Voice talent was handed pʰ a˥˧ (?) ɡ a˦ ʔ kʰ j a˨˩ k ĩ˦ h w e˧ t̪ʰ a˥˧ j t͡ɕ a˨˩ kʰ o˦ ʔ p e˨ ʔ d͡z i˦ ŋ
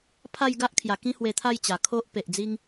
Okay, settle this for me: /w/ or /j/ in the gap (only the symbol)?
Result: j